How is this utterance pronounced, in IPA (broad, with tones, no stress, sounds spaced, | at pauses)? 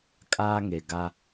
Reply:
kʼ aː˦ ŋ e˨ ɡ a˦